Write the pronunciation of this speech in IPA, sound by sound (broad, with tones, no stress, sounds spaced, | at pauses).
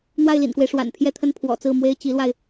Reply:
n̪ w a˥˩ ɪ̯ l ḭ˨˩ n k w e˦ ɪ̯ ʂ w a̰˨˩ n pʰ j ɛ˥˧ t̪ʰ ə˥˩ n pʰ w ɔ̰˨˩ t͡s ɹ̩˥˩ m w e˥ ɪ̯ t͡ɕ i˧˥ l w a˧ ɪ̯